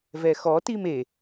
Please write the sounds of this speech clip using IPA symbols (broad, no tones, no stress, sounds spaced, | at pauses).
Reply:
v ɛ x ɔ t i m e